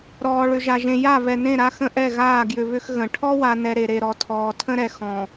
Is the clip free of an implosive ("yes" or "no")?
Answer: yes